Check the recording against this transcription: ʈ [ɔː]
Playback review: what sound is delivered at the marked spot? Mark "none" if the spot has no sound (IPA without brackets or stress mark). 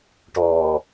ɔː